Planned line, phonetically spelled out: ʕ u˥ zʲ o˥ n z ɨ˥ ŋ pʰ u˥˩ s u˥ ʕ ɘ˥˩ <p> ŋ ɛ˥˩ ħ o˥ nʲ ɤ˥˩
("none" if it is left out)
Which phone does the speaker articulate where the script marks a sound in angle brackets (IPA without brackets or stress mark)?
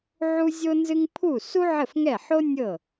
f